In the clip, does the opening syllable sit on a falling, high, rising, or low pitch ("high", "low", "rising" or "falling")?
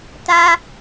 high